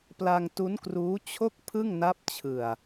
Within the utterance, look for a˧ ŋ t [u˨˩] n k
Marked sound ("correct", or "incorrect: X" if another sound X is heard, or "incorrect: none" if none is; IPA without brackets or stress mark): incorrect: u˦˥